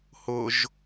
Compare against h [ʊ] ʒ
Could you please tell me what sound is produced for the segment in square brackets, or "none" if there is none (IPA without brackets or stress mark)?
ʊ